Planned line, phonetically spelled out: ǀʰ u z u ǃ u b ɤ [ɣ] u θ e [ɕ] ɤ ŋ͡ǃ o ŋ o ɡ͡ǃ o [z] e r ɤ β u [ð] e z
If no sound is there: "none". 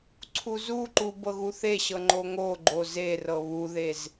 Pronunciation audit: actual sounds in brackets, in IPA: ɣ, ɕ, z, ð

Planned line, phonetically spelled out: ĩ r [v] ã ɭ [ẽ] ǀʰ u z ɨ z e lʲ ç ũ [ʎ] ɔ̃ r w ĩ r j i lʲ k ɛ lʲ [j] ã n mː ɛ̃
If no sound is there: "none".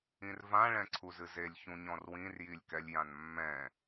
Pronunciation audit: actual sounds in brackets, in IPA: v, ɛ̃, ɲ, j

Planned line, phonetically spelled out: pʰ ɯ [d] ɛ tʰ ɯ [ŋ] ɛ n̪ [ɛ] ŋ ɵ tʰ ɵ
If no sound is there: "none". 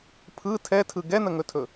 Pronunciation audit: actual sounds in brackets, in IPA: tʰ, ɡ, ə

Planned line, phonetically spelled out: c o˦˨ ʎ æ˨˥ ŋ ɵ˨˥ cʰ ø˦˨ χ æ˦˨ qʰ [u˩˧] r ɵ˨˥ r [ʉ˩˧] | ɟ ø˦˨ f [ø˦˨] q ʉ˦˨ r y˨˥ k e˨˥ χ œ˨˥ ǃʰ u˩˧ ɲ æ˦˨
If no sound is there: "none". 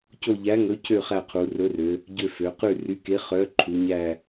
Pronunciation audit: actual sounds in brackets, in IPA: u˩˧, ø˩˧, ø˩˧

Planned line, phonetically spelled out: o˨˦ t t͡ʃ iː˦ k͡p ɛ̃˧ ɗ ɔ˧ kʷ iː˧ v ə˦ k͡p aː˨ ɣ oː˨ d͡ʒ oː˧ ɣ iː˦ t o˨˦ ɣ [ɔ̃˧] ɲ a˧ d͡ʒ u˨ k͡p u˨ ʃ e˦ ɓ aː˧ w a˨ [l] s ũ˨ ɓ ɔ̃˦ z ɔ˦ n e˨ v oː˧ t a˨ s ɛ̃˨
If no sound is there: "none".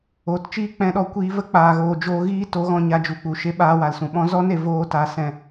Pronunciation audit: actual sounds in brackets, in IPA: ɔ̃˧, l

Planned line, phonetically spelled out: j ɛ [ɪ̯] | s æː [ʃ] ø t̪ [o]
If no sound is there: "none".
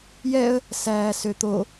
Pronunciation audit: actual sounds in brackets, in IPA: ə̯, s, o

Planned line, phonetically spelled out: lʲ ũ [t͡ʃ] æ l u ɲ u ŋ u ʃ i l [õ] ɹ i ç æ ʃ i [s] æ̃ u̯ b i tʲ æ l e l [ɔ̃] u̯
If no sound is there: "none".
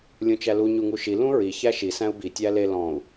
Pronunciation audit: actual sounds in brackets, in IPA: t͡ʃ, ũ, s, ɔ̃

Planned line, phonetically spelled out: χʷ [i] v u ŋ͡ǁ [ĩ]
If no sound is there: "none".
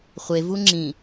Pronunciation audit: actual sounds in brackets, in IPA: e, ĩ

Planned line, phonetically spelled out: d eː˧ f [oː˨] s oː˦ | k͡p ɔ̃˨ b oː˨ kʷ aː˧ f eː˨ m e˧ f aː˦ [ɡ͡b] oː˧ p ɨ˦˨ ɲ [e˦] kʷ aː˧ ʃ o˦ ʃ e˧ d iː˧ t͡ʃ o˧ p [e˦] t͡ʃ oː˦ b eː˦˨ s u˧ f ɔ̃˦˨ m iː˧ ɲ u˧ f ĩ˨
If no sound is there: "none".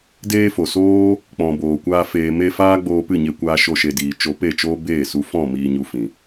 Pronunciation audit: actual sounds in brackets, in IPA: o˨, ɡ͡b, e˧, e˦˨

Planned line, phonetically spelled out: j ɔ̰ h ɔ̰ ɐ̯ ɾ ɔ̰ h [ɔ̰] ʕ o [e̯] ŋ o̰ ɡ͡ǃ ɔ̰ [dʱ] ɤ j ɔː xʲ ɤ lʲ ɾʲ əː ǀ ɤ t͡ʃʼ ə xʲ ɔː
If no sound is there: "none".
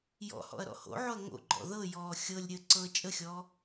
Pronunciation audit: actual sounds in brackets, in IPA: o̰, ɐ̯, ð

